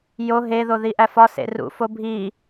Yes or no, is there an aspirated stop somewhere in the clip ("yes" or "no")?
no